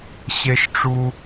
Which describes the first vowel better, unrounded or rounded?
unrounded